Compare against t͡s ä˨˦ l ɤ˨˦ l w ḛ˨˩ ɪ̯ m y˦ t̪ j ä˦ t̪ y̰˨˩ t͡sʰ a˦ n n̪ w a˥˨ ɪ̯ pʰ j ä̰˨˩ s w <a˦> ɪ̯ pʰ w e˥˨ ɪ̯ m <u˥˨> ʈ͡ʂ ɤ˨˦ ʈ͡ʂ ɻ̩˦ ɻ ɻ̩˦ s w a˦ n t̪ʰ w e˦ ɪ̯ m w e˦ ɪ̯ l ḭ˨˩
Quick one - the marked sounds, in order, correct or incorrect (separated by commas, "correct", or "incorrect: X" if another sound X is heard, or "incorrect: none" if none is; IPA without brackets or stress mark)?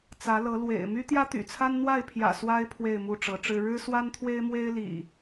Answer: correct, correct